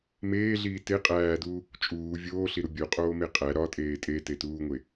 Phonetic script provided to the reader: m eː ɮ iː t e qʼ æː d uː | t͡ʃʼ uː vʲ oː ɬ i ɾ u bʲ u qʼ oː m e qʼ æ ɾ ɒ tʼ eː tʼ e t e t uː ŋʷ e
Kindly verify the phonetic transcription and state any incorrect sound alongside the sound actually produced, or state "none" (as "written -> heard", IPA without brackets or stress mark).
none